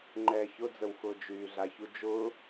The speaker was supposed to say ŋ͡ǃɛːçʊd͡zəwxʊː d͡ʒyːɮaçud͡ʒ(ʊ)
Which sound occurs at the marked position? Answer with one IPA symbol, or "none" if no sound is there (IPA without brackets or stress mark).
ʊː